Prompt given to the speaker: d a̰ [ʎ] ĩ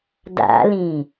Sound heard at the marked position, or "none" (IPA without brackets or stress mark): l